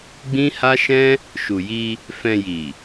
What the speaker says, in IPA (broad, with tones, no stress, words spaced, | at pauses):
ɡ͡bĩ˦ha˦ʃɛ̃˦ | ʃu˨ji˧ | fɛ̃˧ji˨